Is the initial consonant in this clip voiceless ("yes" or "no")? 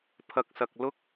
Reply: yes